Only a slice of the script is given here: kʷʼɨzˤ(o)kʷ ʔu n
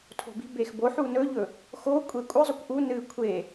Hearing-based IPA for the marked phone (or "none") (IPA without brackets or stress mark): ɵ